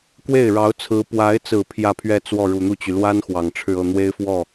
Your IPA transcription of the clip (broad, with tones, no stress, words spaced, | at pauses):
kwe˥˩ɪ̯ɻɑ˧˥ʊ̯t͡sʰɹ̩˧˥ pwa˧˥ɪ̯t͡sɹ̩˨˩ pʰjä˥˧pʰɥɛ˥˧t͡swɔ˥˩ ɻu˨˩n̪u˥˩t͡ɕy˩ lwa˥n xwɑ˨˩ŋʈ͡ʂʰɻ̩˥˧ɤ˥˩ n̪we˥ɪ̯fwɔ˥˩